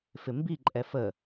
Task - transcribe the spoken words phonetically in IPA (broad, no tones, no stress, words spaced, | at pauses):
fɪmbi ǃʼɛfə